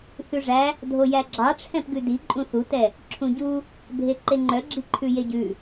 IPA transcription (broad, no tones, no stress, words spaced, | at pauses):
θʉʐæ | dʱojæɡ͡ǁɑʈ͡ʂʰɛ̃p ɡʉdi ǃʼũθutɛ | ǁʰũɟu | bʱeǃeŋ͡ǃœɡ͡ǁi ǃʰʉjeɟʉ